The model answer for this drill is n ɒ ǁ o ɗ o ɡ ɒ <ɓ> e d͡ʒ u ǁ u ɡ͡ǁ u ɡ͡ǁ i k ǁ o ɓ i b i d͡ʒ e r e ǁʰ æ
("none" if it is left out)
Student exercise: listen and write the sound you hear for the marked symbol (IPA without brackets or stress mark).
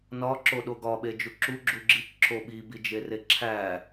ɓ